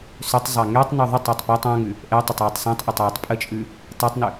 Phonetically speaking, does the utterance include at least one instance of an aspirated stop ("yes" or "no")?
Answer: no